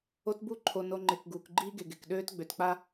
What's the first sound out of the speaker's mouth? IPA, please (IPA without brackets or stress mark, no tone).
o